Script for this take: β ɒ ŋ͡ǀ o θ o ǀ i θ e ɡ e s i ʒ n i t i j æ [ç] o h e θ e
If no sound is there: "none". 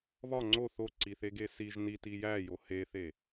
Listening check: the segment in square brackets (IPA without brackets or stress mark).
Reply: j